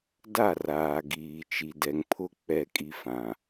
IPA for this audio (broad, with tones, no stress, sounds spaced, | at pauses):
d a˦˨ r aː˨ ɡ iː˨ t͡ʃ i˨ d ɛ˨ ŋ pʰ ʊ˦ k͡p ɛ˦˨ kʼ i˦ f ã˨